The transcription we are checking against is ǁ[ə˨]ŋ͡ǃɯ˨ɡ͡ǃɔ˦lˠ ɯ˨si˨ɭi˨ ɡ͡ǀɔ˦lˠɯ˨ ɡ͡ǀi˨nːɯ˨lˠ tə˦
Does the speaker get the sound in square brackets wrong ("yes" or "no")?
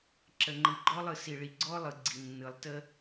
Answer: no